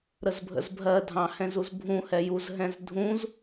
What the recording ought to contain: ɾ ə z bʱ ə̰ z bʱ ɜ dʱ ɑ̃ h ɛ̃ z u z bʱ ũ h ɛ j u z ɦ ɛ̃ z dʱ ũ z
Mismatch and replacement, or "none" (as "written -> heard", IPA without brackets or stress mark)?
none